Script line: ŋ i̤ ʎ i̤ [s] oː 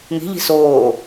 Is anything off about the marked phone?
no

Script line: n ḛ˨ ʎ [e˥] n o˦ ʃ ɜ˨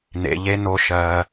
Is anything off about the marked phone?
no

